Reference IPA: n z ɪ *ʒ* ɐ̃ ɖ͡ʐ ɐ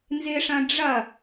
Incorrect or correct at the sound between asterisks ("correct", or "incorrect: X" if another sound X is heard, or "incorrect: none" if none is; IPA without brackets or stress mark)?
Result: incorrect: ʂ